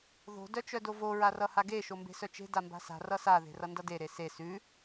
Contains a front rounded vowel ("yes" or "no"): yes